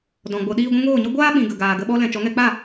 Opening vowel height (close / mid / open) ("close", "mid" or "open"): mid